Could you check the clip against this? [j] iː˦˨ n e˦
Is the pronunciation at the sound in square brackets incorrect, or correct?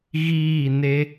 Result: incorrect